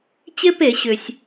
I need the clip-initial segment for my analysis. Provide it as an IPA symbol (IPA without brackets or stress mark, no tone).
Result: t͡ɕ